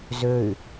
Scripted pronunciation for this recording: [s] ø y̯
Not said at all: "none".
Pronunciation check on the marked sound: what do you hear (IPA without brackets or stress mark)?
z